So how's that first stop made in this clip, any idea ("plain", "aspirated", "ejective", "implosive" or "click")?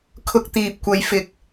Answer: aspirated